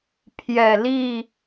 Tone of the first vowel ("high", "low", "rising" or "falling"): low